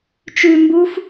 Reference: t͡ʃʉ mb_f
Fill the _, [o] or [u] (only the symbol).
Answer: u